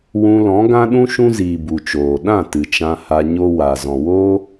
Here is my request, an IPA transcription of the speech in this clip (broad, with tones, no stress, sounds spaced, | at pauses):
w ũ˧ l ɔ̃˨˦ ɡ ã˦ ɗ ũ˦ ʃ ũ˦ z iː˨ b u˨ t͡ʃ oː˨ ɗ ã˦˨ t ɨ˨ t͡ʃ ã˧ h a˧ ɲ o˦ w a˨ z ɔ̃˨ w oː˦